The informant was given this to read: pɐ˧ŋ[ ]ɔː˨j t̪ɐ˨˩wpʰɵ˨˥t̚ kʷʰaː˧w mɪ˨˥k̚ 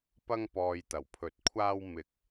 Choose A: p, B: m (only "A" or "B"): A